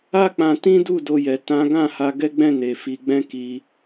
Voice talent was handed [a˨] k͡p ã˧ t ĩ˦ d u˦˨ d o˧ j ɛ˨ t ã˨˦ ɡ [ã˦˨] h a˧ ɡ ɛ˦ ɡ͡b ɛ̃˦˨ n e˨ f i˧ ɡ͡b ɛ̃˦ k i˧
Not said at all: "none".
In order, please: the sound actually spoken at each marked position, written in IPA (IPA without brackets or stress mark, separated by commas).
a˦, ã˦˨